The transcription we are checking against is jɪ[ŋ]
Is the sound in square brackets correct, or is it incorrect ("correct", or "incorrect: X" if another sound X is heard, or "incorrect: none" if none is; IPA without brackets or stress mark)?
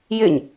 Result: incorrect: ɲ